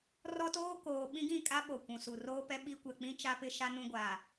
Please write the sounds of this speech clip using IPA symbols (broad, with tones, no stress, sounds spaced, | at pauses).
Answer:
r ɔ˦ t oː˦ k oː˨ ɓ ĩ˦ ɡ ĩ˦˨ kʼ a˦ ɓ o˨ kʷ ũ˨ s u˨ r oː˦ p ɛ˦ ɓ i˦ kʷ ɛ˨ k͡p ĩ˦ t͡ʃ a˦ p ɪ˦ ʃ a˦ n ũ˦ ɡʷ a˨